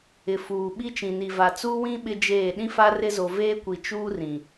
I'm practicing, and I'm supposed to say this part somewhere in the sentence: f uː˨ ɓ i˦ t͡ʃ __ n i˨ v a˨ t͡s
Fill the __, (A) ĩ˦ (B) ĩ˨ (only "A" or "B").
B